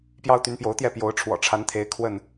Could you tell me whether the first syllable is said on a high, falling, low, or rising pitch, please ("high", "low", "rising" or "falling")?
high